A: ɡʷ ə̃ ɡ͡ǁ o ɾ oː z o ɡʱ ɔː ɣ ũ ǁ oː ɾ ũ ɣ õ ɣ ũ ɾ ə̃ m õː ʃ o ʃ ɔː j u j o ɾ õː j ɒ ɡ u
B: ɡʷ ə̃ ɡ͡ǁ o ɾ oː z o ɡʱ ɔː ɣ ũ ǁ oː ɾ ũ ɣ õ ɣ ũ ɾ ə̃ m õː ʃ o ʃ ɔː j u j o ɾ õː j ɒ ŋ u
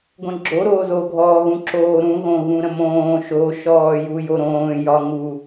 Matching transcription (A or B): B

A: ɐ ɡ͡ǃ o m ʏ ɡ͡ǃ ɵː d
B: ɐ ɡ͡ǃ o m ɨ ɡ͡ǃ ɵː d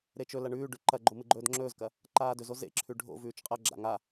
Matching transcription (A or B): B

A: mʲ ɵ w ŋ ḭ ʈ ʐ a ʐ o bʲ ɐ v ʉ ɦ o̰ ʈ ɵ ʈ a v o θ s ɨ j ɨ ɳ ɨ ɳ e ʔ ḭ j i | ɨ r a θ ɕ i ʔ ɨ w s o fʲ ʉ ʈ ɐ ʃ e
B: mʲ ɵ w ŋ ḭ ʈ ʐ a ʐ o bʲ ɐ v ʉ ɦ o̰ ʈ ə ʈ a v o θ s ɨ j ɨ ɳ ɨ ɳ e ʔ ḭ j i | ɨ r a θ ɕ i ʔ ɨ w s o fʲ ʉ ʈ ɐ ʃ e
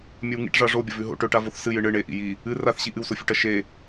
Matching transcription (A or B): A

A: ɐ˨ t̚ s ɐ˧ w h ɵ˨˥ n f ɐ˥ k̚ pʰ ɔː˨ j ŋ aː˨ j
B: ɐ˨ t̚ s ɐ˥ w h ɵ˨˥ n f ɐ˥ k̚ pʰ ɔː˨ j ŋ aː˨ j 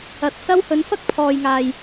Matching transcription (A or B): B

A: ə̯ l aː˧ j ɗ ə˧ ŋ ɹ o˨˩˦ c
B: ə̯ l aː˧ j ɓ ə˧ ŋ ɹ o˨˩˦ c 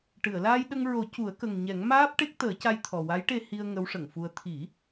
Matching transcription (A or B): A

